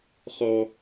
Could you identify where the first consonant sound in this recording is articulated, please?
uvular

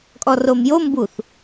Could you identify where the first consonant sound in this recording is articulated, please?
velar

